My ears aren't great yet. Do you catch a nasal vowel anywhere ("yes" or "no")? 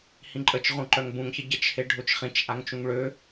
yes